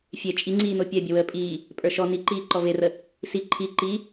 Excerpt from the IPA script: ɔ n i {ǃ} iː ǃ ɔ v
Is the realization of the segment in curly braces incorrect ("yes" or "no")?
no